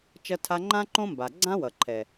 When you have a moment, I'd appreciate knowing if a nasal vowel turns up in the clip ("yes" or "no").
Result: yes